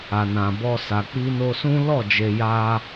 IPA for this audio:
a˨ n ã˨ b ɔ˧ s a˨ k͡p i˧ n o˧ s ũ˦ l ɔ˦˨ d͡ʒ e˧ j a˦

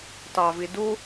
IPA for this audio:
t ɑ v i d u

